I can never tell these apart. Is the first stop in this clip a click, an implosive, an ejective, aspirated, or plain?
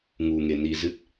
plain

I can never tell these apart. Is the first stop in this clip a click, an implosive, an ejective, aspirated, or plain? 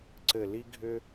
click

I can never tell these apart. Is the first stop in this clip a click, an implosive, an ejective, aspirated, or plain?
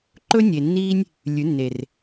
click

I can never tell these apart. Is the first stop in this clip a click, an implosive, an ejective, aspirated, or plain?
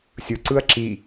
click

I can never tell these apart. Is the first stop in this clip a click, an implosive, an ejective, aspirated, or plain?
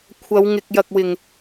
aspirated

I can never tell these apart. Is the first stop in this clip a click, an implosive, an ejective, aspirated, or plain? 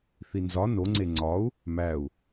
click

